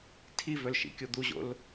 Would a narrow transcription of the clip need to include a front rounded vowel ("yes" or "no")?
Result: yes